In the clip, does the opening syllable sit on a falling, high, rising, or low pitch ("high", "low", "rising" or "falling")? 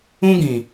high